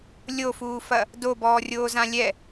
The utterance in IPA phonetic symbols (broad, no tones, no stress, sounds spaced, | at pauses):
lʲ o f uː f ɐ | d o b ɔː rʲ oː z ã lʲ ɛ